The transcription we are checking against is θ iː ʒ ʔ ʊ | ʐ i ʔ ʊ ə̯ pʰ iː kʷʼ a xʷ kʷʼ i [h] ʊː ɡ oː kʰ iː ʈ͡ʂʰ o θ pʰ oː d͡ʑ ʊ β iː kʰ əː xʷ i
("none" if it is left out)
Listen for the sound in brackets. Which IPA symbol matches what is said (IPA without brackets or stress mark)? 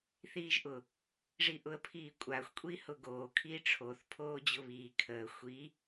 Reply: h